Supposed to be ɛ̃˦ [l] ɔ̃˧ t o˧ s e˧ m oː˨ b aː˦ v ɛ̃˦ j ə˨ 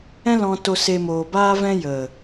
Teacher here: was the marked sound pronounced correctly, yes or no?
yes